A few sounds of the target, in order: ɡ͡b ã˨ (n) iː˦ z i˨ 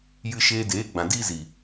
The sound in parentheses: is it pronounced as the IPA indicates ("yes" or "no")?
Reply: no